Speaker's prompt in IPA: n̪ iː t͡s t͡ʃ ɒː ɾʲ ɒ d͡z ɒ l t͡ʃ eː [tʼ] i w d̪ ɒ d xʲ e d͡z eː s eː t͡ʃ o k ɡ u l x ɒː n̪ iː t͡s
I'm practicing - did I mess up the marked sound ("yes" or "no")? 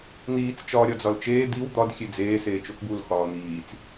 yes